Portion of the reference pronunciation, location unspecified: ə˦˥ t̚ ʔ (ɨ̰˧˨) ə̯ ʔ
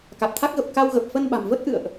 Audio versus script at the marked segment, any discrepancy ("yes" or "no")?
no